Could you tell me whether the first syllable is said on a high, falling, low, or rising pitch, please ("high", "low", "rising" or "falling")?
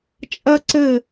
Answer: high